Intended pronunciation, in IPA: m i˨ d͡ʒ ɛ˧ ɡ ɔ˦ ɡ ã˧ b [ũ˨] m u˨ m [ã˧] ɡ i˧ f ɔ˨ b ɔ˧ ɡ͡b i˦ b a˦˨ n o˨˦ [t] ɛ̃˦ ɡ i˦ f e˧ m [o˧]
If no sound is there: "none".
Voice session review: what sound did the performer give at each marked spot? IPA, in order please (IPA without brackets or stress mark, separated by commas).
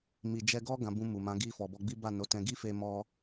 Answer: ũ˧, ã˨˦, t, ɔ˧